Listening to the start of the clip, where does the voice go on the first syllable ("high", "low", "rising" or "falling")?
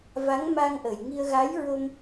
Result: rising